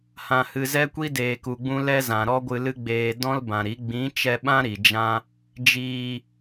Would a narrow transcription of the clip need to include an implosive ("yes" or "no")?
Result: yes